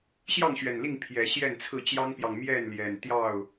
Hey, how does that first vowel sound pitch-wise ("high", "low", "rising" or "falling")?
falling